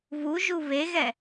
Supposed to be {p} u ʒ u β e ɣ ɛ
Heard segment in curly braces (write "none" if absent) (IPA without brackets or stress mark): β